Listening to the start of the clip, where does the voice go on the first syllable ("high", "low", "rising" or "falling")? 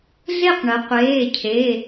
falling